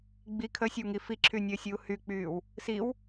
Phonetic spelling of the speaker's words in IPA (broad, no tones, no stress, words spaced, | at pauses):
ɡ͡bi kʰəsʲəwŋi fiǁʰynʲəːsʲuː hyk͡pyːw | siw